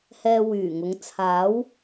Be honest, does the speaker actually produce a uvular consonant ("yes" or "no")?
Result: no